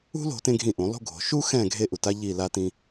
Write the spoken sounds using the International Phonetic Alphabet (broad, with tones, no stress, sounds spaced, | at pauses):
ṳ˥ l o̤˩˧ t ẽ˥ ɡʱ ĩ˦˨ ʔ ũ˩˧ lˠ ṳ˥ ɡʱ o̤˩˧ ʃ u˥ x ɛ̃˦˨ ɡʱ e˥ ʔ u˩˧ t a˥ ʎ i˦˨ l a˥ t ĩ˥